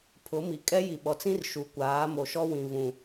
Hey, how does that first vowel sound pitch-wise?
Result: rising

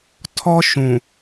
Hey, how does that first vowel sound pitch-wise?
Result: high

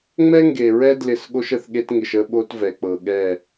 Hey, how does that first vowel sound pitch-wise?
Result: high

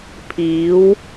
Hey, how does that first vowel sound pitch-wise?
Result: rising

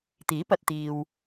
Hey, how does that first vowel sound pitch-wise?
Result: rising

